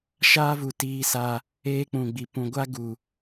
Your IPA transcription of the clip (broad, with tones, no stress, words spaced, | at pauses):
ʃaː˦vu˨ tiː˦sa˦ | eː˦k͡pũ˨ɡ͡bi˨ pũ˨ɡʷa˦ɡu˨